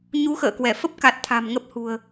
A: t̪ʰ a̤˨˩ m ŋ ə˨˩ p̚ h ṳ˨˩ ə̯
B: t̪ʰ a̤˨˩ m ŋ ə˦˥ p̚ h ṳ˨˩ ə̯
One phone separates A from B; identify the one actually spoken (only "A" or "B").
B